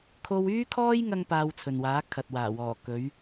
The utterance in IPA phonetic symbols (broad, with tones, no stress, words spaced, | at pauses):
kʰo˥w yː˥kʰɔː˥j ŋɐ˥ŋpaː˧wt͡sʰɵ˨nwaː˨˥ kʰɐ˨t̚waː˨˩wɔː˨˩ kɵ˨˥ɥ